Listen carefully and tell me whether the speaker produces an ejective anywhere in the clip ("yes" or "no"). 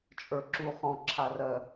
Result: yes